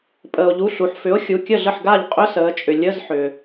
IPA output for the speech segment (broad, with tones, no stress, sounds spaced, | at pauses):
pʼ əː˩ o̯ ʎ u˩˧˩ ɬ u˩ ħ f ʏ˩˥ o̯ xʲ u˩˧˩ kʲ ə˥˩ ɮ ə˥˩ ħ ɡ a˥˩ ʎ qʼ ʏ˧˥˧ s əː˩˧ t͡ʃʼ ʏ˩ lʲ ə˧˥˧ z ħ ʏː˩